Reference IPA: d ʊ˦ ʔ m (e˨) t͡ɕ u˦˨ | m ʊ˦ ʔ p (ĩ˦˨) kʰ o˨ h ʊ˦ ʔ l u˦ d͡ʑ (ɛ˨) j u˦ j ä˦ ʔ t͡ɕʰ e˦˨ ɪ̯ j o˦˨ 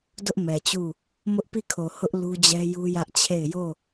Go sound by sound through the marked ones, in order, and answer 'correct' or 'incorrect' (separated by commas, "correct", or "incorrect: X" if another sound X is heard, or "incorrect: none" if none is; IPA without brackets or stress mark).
incorrect: ɛ˨, incorrect: i˦˨, incorrect: ɛ˦